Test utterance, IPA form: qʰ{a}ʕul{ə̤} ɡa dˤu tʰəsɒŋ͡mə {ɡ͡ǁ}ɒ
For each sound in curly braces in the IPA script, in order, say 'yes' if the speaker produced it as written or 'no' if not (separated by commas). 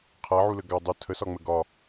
yes, no, no